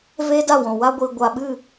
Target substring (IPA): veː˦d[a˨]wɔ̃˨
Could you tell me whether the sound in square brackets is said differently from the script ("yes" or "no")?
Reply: yes